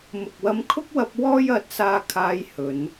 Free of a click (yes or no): yes